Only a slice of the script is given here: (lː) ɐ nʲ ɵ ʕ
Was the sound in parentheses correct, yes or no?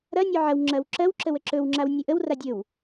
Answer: no